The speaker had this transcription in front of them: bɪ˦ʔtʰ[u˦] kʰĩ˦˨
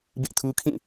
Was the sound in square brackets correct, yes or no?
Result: yes